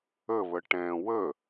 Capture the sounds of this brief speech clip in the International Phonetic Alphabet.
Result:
əβə ʈɛ̃ wə

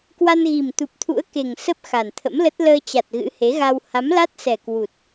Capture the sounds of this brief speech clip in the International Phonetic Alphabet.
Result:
kwa˧nɣi˨˩mt̪u˨˩p̚t̪ʰṵ˧˥ə̯ ke˨˩ŋ sə˦˥p̚ xa˨˩nt̪ʰə̰˧˥mlə˦˥t̚ ləː˧t͡ɕa˨˩t̚ ɣɨ̰˧˥he˨˦ɣa˧w ha˨˦mla˦˥t̚sɛ˨˩ kwu˨˩t̚

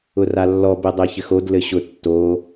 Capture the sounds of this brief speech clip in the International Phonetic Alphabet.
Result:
ʊralːɔ bedˤeçɘxod lɘɕʊ tːo

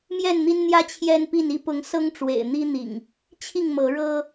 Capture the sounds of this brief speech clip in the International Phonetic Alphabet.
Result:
mjɛ˥˨nn̪i˦nn̪jä˦ t͡ɕʰjɛ˦npi˥˨n i˥˨pʊ˨˦ŋ sɤ˦ŋʈ͡ʂwḛ˨˩ɪ̯n̪i˦n̪ḭ˨˩ŋ | t͡ɕʰi˥˨ŋmɤ˨˦ɻɤ˦

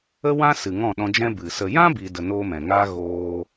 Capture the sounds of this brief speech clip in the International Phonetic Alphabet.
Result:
ə˦wã˦ sɨ˨ ŋɔ̃˦˨ɗɔ̃˧d͡ʒɛ̃˦ bɨ˨ sə˨jã˦ bi˧də˧noː˦mɛ̃˨ ŋaː˦ ɣoː˦

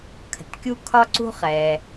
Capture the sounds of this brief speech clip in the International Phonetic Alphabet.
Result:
kʰə̤˩tkʲu˥kʰɒ˥ǀṳ˥ χɛ˩

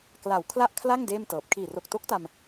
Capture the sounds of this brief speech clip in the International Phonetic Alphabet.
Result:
kla˨˩w kʰla˥˩ʔkʰla˥˩ŋ deː˥˩mtɤː˨˩p̚ kʰiː˨˩ro˨˩k̚to˦˥k̚ta˧m

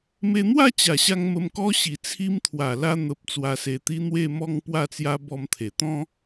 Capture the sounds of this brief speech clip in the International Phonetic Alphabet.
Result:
me˧n̪wa˥˧t͡ɕa˨˩ɕa˧ŋ mə˧mkɔ˦ ɕi˨˩t͡sʰi˧mt̪ʰwa˨˩ la˧ n̪ə˨p̚ t͡swa˧se˧t̪i˦ n̪we˥˧mɔ˥˧ŋ pwa˥˧t͡sja˦ bɔ˧mt̪ʰe˨˩ t̪ɔ̃˦

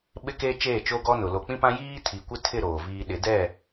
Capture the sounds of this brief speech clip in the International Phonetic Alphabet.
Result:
ɓɪ˦ke˦ t͡ʃeː˦˨t͡ʃo˦ɡɔ˦nʊ˨ lo˨k͡pĩ˦pã˦ jiː˦ tʰi˨kʷɪ˦tʰɪ˦˨ ɾoː˨viː˦ ɗɪ˨˦dɛ˦˨

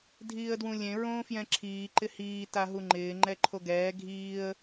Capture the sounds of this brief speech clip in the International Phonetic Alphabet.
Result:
dʱiːə̯dwũlʲẽ ɹõːfjɛ̃ǁʰiː ǃɪhiː taɦuŋ͡ǃɪː ŋ͡ǃɛǃʰoɡɛː ɡʱiːə̯

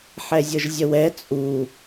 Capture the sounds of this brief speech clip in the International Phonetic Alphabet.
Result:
ħɛzʲɤʒzʲəwɛ t͡sʼu

